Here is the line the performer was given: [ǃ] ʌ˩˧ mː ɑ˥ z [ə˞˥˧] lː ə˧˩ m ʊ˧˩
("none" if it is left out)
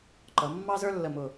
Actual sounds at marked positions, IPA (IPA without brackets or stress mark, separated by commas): ǃ, ə˞˥